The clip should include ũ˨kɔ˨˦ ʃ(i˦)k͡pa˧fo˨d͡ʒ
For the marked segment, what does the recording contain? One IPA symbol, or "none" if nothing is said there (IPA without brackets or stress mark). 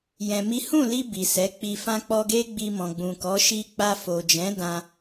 i˧